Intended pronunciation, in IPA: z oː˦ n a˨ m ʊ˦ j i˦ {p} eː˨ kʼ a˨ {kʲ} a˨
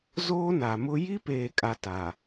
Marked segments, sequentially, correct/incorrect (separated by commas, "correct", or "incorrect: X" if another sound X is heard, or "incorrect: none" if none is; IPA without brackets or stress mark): correct, incorrect: t